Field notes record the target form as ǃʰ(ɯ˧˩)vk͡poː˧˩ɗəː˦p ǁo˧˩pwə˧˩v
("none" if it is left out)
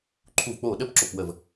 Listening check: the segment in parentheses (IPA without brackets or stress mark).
u˧˩